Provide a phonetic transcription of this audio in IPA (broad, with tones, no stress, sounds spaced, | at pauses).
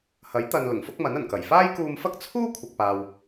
h ɐ˨˥ j t̪ ɐ˨ n l ʊ˨˩ ŋ f ʊ˥ k̚ m ɐ˨˥ n ɐ˨˩ n k ɐ˨˩ j f aː˥ j k uː˧ m f ɐ˥ k̚ t͡sʰ uː˥ kʷʰ ɐ˨ k̚ p aː˨ w